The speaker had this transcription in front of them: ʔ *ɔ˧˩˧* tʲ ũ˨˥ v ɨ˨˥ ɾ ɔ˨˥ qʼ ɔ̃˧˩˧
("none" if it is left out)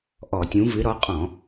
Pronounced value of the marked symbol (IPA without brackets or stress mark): ɔ˧˩˧